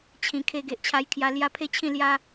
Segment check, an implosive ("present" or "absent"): absent